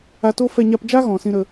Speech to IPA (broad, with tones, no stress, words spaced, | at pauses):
a˧to˦fɛ˧ ɲa˧pd͡ʒa˦ɣɔ̃˨ sĩ˧ɾə˧